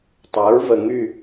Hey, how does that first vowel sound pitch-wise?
rising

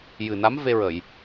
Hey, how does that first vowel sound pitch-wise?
low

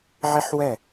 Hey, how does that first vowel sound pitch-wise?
high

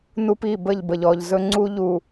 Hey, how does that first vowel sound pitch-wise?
high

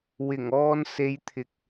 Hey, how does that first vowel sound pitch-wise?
low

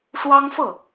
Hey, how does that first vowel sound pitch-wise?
high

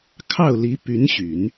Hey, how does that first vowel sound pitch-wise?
falling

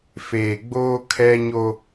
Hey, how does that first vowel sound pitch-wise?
low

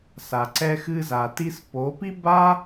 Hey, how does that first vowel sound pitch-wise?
low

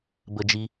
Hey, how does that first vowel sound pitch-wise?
high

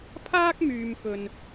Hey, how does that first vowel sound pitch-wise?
high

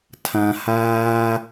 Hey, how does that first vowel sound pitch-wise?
low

